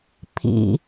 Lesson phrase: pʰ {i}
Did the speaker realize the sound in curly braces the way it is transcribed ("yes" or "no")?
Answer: no